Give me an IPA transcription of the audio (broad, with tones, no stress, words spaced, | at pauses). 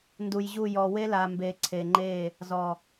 ndu˨jʑu˦˨ jɔ˨we˦la˨ mbe˨ǀʰe˨ŋ͡ǃe˦˨ | zɔ˨